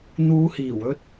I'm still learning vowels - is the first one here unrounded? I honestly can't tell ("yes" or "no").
no